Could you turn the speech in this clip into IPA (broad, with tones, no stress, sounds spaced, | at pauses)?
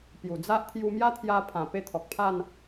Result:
p j u˨˩ d͡z a˦ ʔ t̪ʰ j u˧ m j a˦ t̪ʰ j a˧ pʰ ã˨˩ p e˦ t̪ʰ ɔ˨ k̚ pʰ a˥˧ n